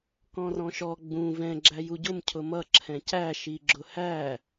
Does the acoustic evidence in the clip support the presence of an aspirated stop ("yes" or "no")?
yes